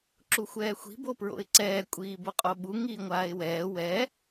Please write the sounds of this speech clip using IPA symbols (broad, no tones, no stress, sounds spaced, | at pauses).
ǁ u xʷ ɛː xʷ i̤ b o p ɹ o̰ ɪ̯ ǀ ɛː kʷʼ iː b o qʼ o ɓ u ŋ iː ŋʷ aː ɪ̯ w ɛː w ɛ